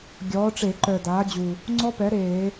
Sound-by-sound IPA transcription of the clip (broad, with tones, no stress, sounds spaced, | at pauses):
ɡʲ ɔː˩˥ ʈ͡ʂ e˧˩˧ ǃ œ˨˩ d aː˩˥ d͡ʑ u˨˩ | ŋ͡ǀ ɔ˦˥ p ɛ˩˥ ɾ eː˧˩˧